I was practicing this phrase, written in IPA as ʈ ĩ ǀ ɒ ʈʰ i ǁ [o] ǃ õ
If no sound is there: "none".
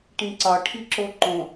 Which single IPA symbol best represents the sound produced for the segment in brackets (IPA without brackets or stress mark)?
o